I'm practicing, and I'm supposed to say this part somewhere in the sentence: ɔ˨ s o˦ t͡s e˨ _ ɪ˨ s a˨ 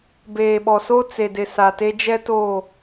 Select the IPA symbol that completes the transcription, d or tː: d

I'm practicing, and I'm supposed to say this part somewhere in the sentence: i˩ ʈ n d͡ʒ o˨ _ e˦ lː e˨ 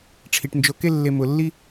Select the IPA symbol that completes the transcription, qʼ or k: k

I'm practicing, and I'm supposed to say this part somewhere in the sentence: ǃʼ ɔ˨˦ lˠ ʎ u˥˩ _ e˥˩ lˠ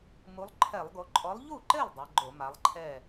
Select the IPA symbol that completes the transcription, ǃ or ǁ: ǃ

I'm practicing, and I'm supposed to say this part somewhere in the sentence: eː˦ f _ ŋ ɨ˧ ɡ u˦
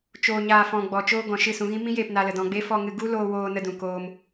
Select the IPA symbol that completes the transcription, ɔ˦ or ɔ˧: ɔ˧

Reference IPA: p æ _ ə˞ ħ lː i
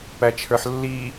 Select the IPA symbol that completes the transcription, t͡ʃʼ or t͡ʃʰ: t͡ʃʰ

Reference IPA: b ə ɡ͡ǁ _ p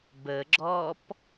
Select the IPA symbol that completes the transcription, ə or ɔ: ɔ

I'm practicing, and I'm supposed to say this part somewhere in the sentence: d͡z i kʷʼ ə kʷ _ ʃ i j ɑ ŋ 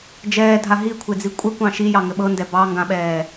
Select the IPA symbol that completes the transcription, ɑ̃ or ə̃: ɑ̃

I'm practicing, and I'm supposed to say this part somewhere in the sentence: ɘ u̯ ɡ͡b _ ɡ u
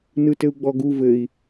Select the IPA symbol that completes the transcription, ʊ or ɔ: ɔ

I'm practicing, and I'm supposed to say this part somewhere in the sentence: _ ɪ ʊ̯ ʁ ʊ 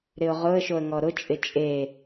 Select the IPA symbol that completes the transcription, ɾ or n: ɾ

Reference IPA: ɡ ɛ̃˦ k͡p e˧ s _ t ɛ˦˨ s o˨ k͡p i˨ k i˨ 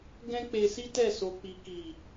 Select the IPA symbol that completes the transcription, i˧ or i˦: i˦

